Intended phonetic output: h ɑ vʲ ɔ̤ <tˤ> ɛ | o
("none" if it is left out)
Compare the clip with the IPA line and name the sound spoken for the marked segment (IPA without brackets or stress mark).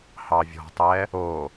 tˤ